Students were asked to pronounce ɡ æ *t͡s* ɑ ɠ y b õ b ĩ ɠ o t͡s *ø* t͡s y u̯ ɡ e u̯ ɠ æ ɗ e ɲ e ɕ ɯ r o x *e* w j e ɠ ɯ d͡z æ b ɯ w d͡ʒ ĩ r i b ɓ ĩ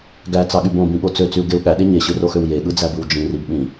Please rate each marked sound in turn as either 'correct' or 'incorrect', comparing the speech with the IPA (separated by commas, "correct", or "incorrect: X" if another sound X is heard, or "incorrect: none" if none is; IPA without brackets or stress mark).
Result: correct, correct, incorrect: ø